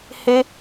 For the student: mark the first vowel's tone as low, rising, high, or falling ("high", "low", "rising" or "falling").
high